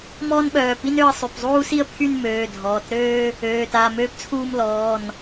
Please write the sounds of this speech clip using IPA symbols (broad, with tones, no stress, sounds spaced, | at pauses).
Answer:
m ɔː˥ n ɓ œː˩˧˩ p i˥ n ø˥˧ ə̯ sˤ y˩˧˩ p zˤ uː˥ s i˥ ə̯ pʰ y˥˧ n m øː˩˧˩ dʱ ɔː˩˧˩ t ɾ øː˥ | øː˩˧˩ t a˩˧˩ m øː˥ p t͡sʰ uː˥˧ m l ɔː˩˧˩ n